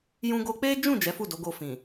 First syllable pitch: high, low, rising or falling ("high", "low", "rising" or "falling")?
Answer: high